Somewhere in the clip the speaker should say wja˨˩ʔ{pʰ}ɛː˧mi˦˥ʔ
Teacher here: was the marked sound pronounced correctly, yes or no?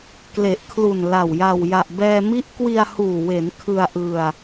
no